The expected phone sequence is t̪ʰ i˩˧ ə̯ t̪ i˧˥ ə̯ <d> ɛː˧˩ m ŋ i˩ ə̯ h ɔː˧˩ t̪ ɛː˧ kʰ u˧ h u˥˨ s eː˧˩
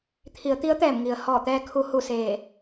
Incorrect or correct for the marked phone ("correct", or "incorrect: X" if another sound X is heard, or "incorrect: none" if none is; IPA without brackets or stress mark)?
incorrect: t̪